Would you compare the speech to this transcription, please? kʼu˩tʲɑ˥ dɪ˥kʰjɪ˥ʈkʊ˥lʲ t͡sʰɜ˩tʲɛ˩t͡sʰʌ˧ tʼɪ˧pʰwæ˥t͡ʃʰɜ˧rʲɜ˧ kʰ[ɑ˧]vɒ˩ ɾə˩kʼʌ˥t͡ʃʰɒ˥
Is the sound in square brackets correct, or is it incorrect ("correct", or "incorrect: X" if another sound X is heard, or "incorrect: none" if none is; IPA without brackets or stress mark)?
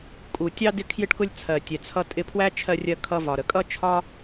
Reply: incorrect: ʌ˧